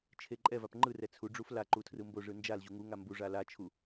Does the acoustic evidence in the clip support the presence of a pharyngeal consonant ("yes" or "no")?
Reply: no